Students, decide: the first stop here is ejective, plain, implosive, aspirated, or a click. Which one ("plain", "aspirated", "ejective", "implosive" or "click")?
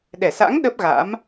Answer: implosive